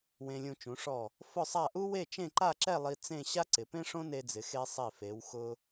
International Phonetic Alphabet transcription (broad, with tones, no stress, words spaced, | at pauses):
wẽ˧lʲũ˧ t͡ʃũ˩˧ʂɔ˧˩ | fʊ˥˧sˤa˥˧ ʔu˥we˥˧ t͡ʃẽ˥˧ǃa˥˧ǁɛ˥˧lˠi˧ t͡sẽ˥˧ ɕa˥ǀɪ˩˧pẽ˥ ʂõ˥ne˧d͡zɪ˩˧xe˧ sˤi˧˩fe˩˧wxʊ˧